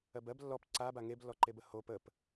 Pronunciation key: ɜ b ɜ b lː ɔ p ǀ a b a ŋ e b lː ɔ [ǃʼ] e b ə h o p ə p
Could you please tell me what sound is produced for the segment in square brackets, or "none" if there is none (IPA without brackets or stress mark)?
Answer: ǃ